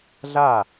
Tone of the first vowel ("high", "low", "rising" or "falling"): falling